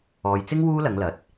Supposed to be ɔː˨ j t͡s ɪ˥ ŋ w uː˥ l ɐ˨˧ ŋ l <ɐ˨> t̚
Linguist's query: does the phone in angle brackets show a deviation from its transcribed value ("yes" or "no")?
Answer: no